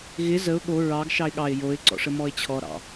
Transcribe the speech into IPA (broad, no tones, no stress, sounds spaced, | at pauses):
ɣ ɪ z ə ʊ̯ ɠ o ɹ ɑ ɡ ʃ ɑ ɪ̯ ɠ ɑ ɪ̯ j o ɪ̯ ǀ ɔ̰ ʂ ə m ɔ ɪ̯ t͡ɕʰ ɔ ɾ ɑ̰